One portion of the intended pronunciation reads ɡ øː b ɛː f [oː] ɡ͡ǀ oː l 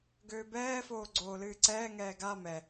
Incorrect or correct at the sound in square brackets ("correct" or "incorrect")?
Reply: correct